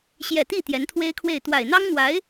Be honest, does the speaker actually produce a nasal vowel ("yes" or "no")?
no